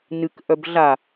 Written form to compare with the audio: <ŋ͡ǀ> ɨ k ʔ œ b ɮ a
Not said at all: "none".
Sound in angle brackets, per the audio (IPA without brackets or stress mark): n